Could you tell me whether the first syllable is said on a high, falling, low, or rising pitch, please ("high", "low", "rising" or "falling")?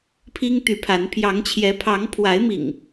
high